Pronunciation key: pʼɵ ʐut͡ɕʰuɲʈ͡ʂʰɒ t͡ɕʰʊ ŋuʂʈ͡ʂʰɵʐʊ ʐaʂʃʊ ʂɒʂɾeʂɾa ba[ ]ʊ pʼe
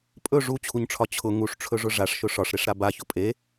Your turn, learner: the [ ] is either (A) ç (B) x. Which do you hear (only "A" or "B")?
A